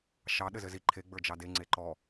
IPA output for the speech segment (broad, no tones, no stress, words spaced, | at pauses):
ʃɑ ɗɘzɘzi ǃʰe ɡ͡bə˞d͡ʒɑde ŋ͡ǀeǃɔ